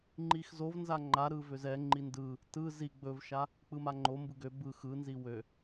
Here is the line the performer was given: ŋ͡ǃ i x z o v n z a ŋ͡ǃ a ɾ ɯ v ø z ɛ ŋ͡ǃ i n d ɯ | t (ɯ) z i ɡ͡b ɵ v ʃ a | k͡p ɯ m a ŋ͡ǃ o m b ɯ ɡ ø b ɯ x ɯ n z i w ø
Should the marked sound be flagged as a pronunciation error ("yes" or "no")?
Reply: no